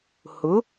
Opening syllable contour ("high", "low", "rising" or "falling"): rising